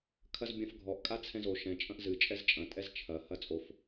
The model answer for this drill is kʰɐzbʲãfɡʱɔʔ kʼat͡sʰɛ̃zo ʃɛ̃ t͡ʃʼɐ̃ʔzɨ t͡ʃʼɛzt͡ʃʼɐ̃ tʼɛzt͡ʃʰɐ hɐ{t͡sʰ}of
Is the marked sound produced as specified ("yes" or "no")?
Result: no